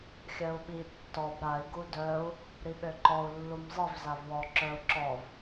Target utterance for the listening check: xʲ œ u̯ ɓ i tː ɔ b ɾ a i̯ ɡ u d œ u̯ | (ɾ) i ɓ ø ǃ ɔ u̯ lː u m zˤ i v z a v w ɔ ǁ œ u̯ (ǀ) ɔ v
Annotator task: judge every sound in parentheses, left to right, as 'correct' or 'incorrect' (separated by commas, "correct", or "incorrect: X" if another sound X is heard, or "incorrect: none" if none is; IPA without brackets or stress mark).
correct, incorrect: ǁ